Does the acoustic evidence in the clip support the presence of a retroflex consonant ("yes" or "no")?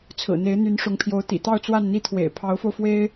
yes